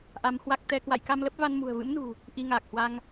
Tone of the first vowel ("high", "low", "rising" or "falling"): rising